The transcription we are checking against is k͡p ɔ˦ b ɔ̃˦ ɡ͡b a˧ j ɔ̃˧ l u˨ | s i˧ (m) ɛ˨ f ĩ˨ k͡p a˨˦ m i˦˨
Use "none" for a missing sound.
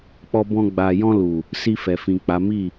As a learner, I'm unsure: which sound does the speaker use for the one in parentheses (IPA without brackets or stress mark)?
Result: f